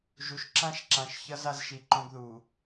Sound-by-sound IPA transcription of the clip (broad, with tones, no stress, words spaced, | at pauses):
ʒu˨ʃ ǁã˦ʃǁã˨ʃ çʌ˦z a˦zʃi˨ǃõ˦ɡðu˨